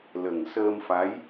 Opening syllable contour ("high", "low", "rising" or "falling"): low